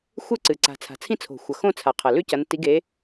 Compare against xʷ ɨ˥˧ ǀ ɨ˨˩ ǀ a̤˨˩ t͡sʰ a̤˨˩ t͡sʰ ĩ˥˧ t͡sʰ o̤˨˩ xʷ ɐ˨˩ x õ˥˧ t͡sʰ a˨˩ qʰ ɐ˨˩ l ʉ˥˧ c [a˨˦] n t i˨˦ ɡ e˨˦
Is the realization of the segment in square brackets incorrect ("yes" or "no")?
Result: yes